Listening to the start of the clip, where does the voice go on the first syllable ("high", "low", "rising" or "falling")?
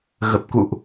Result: low